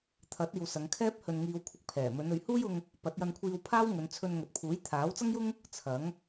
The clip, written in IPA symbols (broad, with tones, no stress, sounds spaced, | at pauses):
t̪ʰ ɐ˨˥ t̚ iː˨ w s ɐ˨˧ ŋ kʰ ɛː˥ p̚ h ɵ˧ n ŋ iː˧ w kʷʰ ɪ˧ k̚ pʰ ɛː˨˩ m ɵ˨˧ n ɵ˨˧ ɥ h uː˥ j ʊ˧ ŋ | p ɐ˨˥ t̚ j ɐ˧ n kʷʰ iː˧ w pʰ aː˥ w ŋ ɵ˨˧ n t͡sʰ ɵ˧ n ŋ ɵ˨ t̚ pʰ uː˨˥ j t̪ʰ aː˨˥ w t͡s ɐ˥ ŋ j ʊ˥ ŋ | t͡sʰ ɐ˨˥ ŋ